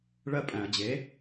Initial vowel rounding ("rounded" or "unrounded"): unrounded